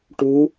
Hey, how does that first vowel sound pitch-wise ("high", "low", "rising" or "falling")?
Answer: rising